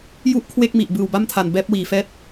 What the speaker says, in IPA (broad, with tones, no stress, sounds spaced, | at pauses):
j u˥˩ ʔ kʰ w e˥˩ k̚ m i˨˩ ʔ b ɯː˨˩ w b a˥˩ m tʰ a˨˩ n b ɛː˦˥ p̚ w iː˨˩ f ɛː˦˥ t̚